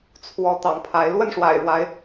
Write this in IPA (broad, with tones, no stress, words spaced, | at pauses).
t͡sʰwɔ˨˦t̪ɑ̰˨˩ŋ pʰa˨˦ɪ̯ lwə˥˨nʂwa̰˨˩ɪ̯ɻwa˨˦ɪ̯